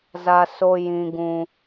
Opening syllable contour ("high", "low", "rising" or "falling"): high